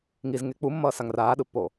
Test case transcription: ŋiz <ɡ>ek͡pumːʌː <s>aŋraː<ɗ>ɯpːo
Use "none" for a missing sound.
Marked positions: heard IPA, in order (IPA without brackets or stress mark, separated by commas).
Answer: ŋ, s, ɗ